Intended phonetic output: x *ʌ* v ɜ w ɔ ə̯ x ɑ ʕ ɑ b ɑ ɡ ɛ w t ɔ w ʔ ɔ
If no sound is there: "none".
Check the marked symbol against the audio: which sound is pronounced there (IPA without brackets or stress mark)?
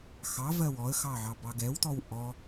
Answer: ɑ